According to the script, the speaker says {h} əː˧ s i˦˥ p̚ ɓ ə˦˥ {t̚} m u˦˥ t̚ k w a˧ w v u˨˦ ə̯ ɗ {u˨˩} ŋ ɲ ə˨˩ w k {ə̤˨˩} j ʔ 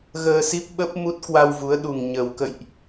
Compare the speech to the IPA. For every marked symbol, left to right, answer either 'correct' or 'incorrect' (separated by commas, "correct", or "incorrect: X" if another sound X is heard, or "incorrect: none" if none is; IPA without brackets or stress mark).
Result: incorrect: ɣ, incorrect: p̚, correct, incorrect: ə̰˧˨